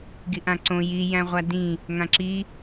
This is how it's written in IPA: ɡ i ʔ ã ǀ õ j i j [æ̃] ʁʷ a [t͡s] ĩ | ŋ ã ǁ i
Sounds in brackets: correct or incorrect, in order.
correct, incorrect: d

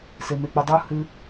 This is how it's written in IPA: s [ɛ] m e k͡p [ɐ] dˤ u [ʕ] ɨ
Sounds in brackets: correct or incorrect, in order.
incorrect: e, correct, incorrect: h

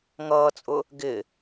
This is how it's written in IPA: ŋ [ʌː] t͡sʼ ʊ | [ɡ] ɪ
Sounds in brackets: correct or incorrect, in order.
correct, correct

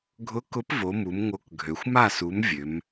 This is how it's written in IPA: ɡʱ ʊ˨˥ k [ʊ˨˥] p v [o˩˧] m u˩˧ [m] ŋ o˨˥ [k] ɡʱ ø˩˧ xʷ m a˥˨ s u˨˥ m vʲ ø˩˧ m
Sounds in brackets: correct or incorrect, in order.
correct, correct, correct, correct

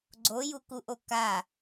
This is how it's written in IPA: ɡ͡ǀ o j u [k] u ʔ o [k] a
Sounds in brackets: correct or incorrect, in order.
correct, correct

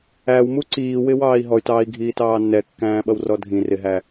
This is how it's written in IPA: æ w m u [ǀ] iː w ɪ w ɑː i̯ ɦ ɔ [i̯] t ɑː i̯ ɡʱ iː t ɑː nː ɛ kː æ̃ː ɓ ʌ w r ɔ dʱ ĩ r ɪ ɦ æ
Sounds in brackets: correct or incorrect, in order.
correct, incorrect: y̯

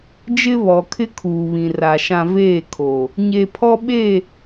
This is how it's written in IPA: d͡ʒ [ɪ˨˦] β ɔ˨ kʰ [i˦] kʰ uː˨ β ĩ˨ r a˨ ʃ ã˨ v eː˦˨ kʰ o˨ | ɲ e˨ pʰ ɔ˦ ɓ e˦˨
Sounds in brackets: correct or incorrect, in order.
incorrect: ɪ˦, incorrect: ɪ˦

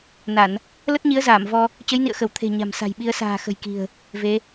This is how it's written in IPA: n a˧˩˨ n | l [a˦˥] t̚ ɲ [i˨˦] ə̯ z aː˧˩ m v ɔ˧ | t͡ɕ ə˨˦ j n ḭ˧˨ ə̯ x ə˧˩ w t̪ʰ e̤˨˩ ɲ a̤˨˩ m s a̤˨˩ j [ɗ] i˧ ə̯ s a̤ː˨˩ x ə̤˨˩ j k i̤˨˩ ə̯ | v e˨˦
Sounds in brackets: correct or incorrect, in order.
incorrect: ə˦˥, correct, incorrect: ɓ

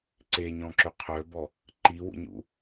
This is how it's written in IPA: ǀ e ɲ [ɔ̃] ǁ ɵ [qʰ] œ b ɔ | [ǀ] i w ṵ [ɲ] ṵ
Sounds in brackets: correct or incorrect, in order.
correct, correct, incorrect: ǃ, correct

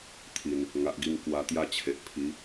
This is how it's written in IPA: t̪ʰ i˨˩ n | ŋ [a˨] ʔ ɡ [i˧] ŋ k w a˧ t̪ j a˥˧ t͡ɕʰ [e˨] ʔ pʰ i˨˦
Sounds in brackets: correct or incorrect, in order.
correct, correct, correct

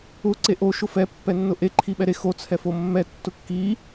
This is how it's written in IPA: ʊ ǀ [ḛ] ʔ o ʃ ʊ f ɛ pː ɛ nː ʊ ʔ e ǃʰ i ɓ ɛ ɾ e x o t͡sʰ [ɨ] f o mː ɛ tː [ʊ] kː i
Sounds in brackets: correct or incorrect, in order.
incorrect: e, incorrect: ɛ, correct

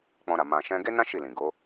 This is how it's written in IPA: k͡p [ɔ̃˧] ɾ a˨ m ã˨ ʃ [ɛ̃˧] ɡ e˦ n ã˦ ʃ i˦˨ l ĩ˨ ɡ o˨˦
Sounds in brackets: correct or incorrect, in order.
correct, correct

